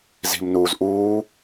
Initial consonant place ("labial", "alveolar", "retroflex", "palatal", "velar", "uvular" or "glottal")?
alveolar